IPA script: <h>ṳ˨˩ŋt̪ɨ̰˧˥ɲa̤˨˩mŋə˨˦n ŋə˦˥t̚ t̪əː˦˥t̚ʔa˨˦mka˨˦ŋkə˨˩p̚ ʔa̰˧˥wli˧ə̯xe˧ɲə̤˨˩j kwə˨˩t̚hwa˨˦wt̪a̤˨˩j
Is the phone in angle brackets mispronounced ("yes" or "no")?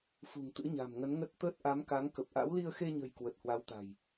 yes